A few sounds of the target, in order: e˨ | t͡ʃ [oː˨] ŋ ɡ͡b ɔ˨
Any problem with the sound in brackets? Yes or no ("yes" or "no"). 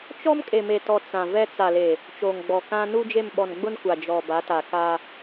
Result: no